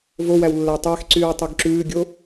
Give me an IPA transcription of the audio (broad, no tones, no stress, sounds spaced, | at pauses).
v o w æ w lː æ tˤ æ x ǀ yː w tˤ u ɡ ǁ ʉː ɡʲ o